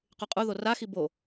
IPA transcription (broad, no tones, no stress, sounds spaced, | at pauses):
q y qʼ u ð o r a x i b o